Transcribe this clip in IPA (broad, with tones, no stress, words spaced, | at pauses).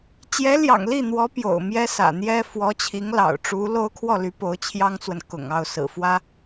t͡ɕjɛ˧˥ljɑ̰˨˩ŋli˥˩n̪wɔ˧˥ pjo̰˨˩ʊ̯mjɛ˥sä̰˨˩n̪jɛ˥ fwɔ˧˥t͡ɕʰi˧˥ŋlɑ̰˨˩ʊ̯ ʈ͡ʂu˧˥lo˥ʊ̯ kʰwɔ˥˩ly˧˥ po˧˥ʊ̯t͡ɕʰjɑ˥ŋt͡swə˨n kʊ̰˨˩ŋɑ˥˩ʊ̯ sɹ̩˨˩fwä˥